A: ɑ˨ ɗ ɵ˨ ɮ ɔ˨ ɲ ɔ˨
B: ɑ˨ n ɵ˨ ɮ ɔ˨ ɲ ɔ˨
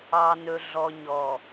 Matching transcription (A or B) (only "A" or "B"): B